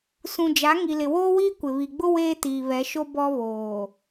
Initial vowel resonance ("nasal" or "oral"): nasal